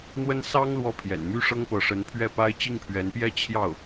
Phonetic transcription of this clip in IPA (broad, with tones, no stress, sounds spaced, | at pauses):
n̪ w ə˥ n s ɑ˥ ŋ l w ɔ˥ pʰ j ɛ̰˨˩ n m y˥ ʂ ɤ˥ ŋ p ɤ˧˥ ʂ ə˧˥ n pʰ ɥ ɛ˥˩ p a˥ ɪ̯ t͡ɕ i˥˩ ŋ pʰ ɥ ɛ˧˥ n p j ɛ˥˧ t͡ɕʰ j ɑ˥˩ ʊ̯